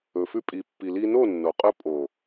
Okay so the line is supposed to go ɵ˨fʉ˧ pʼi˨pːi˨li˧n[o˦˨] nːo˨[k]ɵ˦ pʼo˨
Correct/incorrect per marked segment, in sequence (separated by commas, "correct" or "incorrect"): correct, incorrect